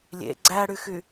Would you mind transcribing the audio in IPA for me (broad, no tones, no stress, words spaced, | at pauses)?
lʲḛ ɡ͡ǀæɽyxy